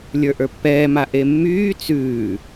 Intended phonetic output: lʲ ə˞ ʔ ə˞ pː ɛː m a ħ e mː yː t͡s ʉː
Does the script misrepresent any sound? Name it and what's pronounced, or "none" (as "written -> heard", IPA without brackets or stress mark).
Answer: ħ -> ʔ